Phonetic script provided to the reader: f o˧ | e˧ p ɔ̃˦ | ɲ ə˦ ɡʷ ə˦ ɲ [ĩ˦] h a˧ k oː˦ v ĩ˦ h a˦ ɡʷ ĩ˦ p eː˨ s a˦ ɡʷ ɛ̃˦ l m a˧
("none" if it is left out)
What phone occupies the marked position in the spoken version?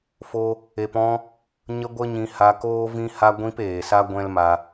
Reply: ĩ˧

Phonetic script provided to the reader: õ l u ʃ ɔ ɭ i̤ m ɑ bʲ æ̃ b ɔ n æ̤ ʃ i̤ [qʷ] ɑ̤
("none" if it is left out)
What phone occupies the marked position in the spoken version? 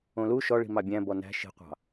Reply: qʷ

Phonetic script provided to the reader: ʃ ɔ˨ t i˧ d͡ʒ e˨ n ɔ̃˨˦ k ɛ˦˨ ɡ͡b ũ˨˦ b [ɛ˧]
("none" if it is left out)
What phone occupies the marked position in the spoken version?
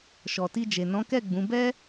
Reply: ɛ˦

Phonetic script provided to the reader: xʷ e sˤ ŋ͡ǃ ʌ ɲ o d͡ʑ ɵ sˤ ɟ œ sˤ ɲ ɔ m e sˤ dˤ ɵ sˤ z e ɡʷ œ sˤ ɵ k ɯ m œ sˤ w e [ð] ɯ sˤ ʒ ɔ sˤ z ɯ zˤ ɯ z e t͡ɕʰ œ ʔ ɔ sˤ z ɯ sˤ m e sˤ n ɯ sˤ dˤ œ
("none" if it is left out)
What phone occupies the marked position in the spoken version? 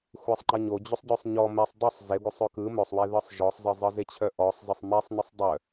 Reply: ð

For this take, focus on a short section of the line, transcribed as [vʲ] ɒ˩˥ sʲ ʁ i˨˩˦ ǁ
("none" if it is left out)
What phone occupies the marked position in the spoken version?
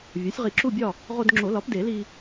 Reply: vʲ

